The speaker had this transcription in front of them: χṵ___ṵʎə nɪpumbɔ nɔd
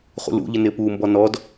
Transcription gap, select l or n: l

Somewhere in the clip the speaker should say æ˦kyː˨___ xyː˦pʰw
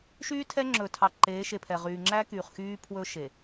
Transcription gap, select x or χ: χ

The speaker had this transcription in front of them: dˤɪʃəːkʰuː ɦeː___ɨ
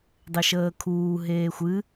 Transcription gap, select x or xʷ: xʷ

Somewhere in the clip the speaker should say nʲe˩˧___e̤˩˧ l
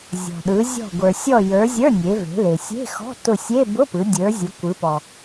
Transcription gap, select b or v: v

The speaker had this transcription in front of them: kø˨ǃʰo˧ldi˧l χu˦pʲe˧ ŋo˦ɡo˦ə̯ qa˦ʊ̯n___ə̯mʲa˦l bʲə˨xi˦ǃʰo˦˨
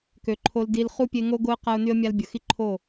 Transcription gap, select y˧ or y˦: y˦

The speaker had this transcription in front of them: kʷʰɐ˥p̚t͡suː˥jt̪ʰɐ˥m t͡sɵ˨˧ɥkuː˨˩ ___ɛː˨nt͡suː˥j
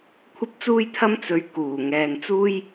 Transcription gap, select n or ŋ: ŋ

